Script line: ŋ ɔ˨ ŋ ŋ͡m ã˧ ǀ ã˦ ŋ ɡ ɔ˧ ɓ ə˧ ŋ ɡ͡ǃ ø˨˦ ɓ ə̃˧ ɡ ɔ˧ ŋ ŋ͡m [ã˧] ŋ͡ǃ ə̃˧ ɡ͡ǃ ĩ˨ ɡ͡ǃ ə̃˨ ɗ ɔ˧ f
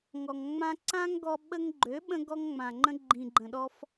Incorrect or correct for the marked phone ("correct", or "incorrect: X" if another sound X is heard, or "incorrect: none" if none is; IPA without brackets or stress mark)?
incorrect: ã˨